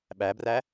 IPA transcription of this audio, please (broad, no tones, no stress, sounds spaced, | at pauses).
ɓ æ b r æ